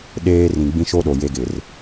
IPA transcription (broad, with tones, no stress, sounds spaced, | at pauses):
ɗ eː˦ r ĩ˨ ɡ͡b ĩ˦ ʃ o˦ ɗ o˨ j e˦ ɡ ɪ˨ r